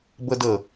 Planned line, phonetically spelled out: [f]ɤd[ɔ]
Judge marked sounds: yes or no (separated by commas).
no, no